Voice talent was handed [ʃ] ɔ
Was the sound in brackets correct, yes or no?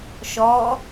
yes